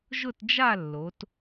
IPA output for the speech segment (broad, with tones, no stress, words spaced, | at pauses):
ʒʊ˥˧td͡ʒa˥˧lːo˩˧t